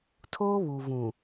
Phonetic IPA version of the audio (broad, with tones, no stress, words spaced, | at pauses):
tʰoː˦βu˨vũ˨